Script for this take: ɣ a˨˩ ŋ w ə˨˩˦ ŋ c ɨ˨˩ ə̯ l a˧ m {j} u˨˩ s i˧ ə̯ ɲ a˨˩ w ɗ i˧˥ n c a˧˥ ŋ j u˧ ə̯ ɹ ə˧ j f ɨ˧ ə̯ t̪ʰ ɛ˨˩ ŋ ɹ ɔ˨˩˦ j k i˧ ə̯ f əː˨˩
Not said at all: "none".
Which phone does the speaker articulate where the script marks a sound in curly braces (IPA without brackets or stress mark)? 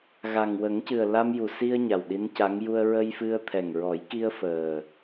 j